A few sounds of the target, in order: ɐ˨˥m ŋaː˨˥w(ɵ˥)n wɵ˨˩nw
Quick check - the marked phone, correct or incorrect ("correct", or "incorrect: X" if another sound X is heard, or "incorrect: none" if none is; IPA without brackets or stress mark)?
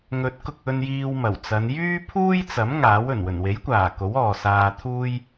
incorrect: ɵ˨˩